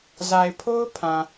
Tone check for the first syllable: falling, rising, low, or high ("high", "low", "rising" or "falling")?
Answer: low